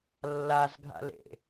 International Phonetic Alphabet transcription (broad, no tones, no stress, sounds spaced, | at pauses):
lː a z ɡʱ a̰ l ḛ